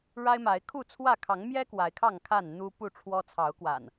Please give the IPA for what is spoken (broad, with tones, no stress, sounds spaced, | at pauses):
ɻ a˦ ɪ̯ m a˨˦ ɪ̯ kʰ u˥˨ t͡sʰ w ä˥˨ kʰ ɑ˨˦ ŋ m j ɛ˦ k w a˨˦ ɪ̯ kʰ ɑ˥˨ ŋ kʰ a˥˨ n n̪ u˦ p u˥˨ ʈ͡ʂʰ w ɔ˦ t͡sʰ ɑ˨˦ ʊ̯ k w a̰˨˩ n